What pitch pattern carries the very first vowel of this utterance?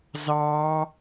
high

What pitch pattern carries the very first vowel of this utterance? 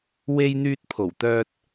high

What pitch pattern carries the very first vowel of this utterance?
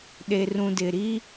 low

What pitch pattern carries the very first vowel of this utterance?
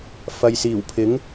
low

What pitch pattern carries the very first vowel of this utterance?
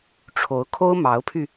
rising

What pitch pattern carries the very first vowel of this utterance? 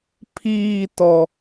falling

